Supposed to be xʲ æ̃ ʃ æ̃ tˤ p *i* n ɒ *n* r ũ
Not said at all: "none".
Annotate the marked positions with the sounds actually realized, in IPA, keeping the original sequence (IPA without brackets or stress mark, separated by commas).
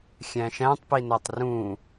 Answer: i, tˤ